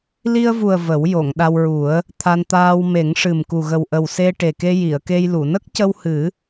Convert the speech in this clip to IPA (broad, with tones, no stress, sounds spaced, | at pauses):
l i˧ ə̯ v u˨˩ ə̯ v ə˨˩˦ w j o˨˩˨ ŋ ɗ a˧ w ɹ u˨˩˦ ə̯ | t̪ʰ a˧ n t̪ aː˧ w m e˨˩˦ ŋ ʂ ɨ˨˩ m k u˨˩ ɣ ə˨˩ w ʔ ə˨˩ w s e˧ ʈ e˨˩ k e˧ j i˨˩˨ ə̯ k e˧ j l u˨˩˨ n ə˦˥ k̚ c ə˧ w h ɨ˨˩˦